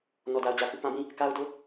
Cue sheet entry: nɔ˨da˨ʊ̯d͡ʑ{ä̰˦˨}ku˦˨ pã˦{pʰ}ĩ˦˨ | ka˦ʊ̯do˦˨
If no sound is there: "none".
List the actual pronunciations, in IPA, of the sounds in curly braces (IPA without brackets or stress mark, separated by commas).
ä˨, b